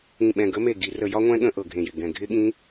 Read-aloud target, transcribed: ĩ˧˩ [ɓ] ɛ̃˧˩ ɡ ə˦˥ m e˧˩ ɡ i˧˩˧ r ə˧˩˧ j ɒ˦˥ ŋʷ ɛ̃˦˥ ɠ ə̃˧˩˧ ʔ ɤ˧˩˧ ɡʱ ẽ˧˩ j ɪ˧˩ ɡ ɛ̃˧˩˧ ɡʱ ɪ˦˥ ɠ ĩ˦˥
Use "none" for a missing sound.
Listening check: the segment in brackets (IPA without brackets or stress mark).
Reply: ɓ